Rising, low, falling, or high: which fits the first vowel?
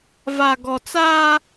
low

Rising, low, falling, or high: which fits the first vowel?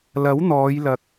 rising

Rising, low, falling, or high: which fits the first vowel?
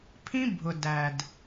high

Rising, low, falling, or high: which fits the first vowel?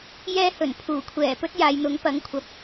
high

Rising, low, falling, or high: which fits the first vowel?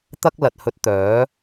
high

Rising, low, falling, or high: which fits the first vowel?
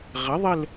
rising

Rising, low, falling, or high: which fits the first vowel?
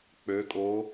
rising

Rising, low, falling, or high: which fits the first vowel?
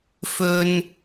high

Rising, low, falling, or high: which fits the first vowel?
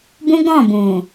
high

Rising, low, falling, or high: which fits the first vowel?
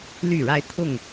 falling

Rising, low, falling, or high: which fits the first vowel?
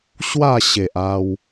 falling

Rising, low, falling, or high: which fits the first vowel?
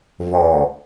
low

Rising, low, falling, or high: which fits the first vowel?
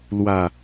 low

